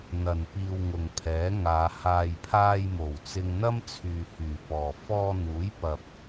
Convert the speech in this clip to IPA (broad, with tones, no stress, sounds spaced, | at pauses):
n̪ ɐ˨ n p iː˧ w ŋ ʊ˨ ŋ pʰ ɛː˨˥ ŋ aː˨˧ h aː˨ j pʰ aː˧ j m o˨˩ w t͡s ɪ˧ ŋ n̪ ɐ˥ m t͡sʰ yː˨ h yː˨˩ p ɔː˨˩ f ɔː˧ n̪ uː˨˥ j p ɐ˨ p̚